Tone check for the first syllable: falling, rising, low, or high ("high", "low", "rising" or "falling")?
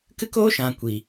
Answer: high